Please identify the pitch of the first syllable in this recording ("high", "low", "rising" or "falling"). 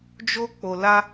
high